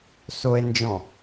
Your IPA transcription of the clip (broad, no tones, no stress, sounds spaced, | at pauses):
s o e̯ n d͡ʒ ɔ̃